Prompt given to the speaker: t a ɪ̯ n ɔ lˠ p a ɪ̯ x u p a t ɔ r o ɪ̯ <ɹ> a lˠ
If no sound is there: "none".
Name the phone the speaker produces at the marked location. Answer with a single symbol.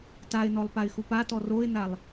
n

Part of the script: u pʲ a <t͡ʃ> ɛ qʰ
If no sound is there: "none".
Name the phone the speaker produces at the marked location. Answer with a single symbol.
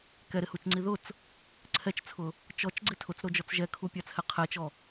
t͡sʰ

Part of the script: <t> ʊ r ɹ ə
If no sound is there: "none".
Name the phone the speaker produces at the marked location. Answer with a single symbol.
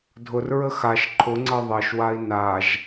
dʱ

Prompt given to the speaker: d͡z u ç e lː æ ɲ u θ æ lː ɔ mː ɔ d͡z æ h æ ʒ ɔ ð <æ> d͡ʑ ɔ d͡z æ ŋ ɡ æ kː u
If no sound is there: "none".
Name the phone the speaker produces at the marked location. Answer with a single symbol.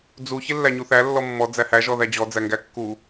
æ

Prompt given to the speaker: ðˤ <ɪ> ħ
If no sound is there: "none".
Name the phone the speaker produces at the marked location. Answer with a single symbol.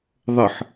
ə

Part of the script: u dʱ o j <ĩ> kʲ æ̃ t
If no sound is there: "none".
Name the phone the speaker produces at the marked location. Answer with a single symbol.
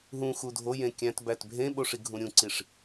ẽ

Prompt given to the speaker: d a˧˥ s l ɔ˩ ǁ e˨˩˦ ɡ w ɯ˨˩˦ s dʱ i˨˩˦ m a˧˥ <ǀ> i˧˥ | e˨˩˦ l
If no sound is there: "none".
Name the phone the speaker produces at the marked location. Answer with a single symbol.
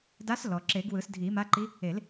ǃ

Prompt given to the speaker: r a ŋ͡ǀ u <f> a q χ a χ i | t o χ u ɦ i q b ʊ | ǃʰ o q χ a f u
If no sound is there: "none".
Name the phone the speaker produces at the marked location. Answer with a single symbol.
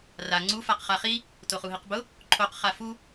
f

